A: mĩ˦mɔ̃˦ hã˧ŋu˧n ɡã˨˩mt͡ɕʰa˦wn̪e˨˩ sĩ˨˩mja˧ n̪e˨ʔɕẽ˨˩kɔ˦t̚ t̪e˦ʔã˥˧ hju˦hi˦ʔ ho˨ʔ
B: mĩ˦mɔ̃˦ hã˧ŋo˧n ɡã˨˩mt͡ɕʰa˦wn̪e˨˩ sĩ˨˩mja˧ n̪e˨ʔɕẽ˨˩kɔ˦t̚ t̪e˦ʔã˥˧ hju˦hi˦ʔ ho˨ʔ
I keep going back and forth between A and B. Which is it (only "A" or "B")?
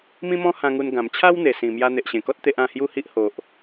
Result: A